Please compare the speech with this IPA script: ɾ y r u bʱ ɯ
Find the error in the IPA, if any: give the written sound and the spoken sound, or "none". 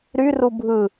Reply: none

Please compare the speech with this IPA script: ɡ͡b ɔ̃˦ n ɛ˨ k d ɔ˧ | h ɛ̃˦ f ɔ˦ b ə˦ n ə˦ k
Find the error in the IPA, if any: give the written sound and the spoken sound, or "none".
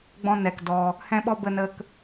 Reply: f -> ɓ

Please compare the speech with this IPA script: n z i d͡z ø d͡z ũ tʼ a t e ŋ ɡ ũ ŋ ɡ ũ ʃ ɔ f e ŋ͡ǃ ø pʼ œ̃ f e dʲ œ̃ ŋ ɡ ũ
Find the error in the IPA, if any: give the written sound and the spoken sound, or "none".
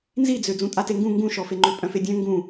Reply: none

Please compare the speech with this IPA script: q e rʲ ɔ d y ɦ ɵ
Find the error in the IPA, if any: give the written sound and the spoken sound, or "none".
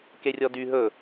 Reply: q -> k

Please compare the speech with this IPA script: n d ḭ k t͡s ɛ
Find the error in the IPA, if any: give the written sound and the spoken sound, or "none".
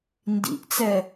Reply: k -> ʔ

